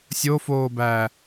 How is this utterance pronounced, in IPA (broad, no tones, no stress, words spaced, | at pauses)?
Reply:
sʲofoː bæ